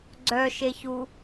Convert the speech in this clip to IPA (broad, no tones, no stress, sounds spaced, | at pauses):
ɡ͡ǀ œ ʃ e ç u